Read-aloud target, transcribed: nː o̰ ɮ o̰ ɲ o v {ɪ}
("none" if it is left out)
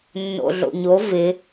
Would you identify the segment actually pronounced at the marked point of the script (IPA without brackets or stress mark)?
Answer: ɪ